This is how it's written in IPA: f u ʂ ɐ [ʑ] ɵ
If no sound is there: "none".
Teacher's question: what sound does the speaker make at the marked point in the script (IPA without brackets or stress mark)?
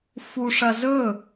z